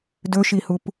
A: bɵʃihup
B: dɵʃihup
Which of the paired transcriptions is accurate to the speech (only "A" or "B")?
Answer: B